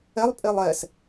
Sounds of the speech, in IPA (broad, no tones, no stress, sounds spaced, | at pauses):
ɛ lˠ pʼ e lˠ ɛ s